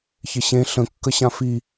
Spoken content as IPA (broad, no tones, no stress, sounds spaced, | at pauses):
ç ɪ ɕ ẽ ɬ ə̃ kː ə ɕ ã f i